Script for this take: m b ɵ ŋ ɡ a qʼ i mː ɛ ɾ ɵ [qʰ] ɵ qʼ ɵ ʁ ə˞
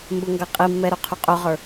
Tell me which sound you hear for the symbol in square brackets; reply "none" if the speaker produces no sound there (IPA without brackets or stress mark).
qʰ